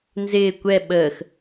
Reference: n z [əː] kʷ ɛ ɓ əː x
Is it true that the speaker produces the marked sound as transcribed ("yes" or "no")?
no